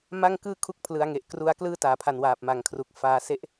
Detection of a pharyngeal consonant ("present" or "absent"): absent